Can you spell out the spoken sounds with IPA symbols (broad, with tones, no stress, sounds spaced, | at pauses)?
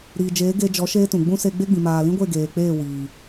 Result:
ɾ iː˨ d͡ʒ eː˨˦ ɡ e˧ d͡ʒ ɔ˨˦ ʃ eː˦ t ũ˨ ɡ͡b ũ˦ s e˧ ɡ͡b e˦ ɡ͡b ĩ˨ m aː˨ l ĩ˦ ɡʷ e˦˨ ɡ eː˨ k͡p eː˦˨ w iː˨